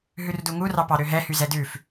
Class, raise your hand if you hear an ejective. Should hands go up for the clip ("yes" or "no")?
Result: no